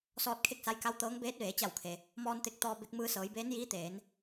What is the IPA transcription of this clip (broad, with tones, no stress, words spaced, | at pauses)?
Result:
sɔː˧t̚kʰe˥˨k̚ sa˧jka˧˥w t̪ɤː˧˥ŋ beː˧˥t̚ʋeː˩˧t͡ɕa˧˩wkʰe˩ | mɔː˧nt̪e˧k̚ t̪ɔː˧be˧k̚ mɯː˧sɤː˩˧jbeː˧˥njiː˧˥ t̪eː˩˧n